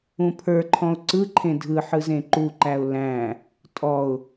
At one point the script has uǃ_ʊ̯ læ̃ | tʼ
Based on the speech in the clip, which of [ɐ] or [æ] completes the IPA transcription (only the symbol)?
æ